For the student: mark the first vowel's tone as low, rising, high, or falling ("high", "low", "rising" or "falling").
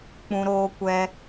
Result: high